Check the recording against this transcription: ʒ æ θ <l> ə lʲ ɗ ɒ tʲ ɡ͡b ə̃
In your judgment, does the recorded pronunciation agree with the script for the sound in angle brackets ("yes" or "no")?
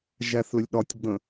yes